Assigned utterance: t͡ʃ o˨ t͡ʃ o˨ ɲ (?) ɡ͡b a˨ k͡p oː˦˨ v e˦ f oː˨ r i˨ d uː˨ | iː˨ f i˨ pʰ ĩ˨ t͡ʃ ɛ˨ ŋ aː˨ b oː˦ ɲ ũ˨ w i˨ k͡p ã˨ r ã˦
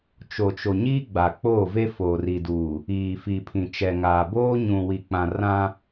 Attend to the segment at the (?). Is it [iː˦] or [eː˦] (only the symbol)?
iː˦